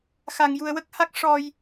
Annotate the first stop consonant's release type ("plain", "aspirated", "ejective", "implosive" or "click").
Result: plain